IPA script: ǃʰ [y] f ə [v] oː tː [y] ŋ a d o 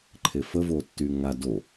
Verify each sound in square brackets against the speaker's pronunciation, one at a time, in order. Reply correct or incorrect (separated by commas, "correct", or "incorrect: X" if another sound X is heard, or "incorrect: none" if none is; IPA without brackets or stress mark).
incorrect: e, correct, correct